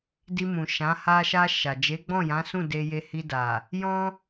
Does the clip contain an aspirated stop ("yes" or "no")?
no